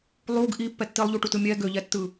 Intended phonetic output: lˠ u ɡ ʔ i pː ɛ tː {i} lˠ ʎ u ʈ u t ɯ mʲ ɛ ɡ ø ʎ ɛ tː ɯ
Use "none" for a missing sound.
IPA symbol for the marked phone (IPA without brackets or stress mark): i